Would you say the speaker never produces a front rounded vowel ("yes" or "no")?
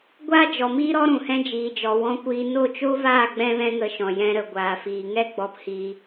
yes